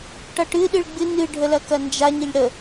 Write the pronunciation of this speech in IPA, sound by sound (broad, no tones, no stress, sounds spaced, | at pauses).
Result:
ʈ ʌ ʈ ɨ ɗ ɨ ɭ ɡ͡b ɨ n ɨ ɖʱ ə l ɐ k ɐ n d͡ʒ a ɲ ə ʎ ɽ ə